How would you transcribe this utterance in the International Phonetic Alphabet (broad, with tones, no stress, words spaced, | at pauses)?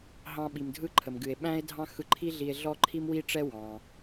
ɦɑ̃˧ɓi˩m dʱɯ˥ǃʰə˩mɡɨ˩e̯ ɓæ̃˥e̯dʱɑ̃˥xɯ˧ ǃʰi˥ɮi˧e̯ ɮɔ˥ ǃʰi˥mwi˥ʈ͡ʂɛ˥ wɑ̃˩